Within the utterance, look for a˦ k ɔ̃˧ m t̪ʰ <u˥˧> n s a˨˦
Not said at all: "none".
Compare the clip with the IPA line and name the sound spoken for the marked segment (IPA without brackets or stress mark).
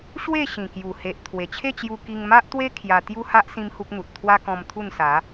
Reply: u˥˧